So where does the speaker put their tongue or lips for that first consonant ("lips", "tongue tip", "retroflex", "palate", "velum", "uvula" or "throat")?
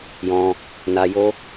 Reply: palate